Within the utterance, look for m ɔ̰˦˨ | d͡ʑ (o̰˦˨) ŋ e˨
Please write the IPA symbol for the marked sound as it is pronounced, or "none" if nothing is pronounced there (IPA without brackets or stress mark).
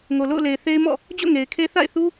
o̰˦˨